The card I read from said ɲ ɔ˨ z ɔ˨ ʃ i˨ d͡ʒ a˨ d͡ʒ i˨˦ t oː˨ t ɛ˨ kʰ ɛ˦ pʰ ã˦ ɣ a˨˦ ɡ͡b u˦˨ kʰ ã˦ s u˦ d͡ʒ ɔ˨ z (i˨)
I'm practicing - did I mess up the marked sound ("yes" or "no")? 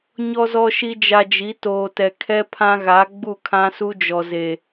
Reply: yes